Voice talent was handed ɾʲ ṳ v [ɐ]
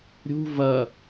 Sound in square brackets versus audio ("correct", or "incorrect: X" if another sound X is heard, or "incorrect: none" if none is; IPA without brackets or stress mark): correct